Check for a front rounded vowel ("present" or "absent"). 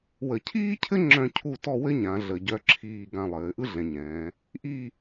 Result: present